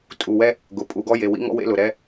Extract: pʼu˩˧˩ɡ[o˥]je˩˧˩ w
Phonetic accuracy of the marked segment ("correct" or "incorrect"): incorrect